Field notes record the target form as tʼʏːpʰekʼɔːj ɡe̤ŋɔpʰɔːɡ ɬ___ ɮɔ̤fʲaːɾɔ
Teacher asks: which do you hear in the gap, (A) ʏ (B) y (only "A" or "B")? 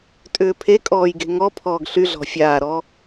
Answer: B